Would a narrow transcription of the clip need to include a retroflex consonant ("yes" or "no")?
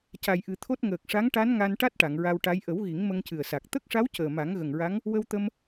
yes